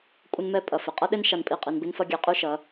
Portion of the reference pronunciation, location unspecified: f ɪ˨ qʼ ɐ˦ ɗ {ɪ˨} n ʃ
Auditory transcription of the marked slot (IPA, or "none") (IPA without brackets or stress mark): ɪ˦